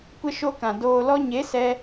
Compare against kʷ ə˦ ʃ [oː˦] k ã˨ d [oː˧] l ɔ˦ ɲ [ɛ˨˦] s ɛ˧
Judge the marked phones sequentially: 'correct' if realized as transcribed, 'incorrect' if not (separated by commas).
incorrect, correct, incorrect